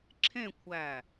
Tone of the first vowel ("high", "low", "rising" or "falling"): falling